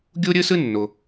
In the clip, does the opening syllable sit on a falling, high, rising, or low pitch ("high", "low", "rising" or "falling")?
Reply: high